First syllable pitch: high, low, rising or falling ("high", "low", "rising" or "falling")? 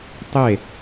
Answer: falling